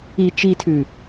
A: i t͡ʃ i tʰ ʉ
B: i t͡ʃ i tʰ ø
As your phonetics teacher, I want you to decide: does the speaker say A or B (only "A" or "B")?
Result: A